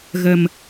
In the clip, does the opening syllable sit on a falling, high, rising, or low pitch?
low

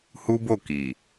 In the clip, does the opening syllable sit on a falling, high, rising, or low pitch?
high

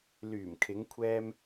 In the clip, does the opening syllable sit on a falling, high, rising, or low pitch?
low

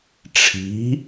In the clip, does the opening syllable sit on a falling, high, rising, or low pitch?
rising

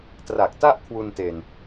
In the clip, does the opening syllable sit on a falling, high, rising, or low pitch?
low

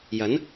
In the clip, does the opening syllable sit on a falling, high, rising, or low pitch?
rising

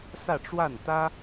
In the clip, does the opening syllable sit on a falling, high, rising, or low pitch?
falling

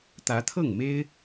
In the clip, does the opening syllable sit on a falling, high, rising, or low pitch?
rising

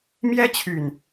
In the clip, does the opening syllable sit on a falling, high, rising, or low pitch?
high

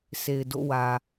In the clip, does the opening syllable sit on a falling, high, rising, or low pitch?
low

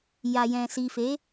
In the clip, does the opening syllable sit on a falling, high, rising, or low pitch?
low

